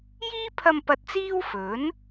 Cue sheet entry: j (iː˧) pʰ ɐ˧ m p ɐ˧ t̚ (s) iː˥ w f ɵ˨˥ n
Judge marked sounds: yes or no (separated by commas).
no, no